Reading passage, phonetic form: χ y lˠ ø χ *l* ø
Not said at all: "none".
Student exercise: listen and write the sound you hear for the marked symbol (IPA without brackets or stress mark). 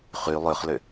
l